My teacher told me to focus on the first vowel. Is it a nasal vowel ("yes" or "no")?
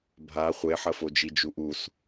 no